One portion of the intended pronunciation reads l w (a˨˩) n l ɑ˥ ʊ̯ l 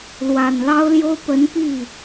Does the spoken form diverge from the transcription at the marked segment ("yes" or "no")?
no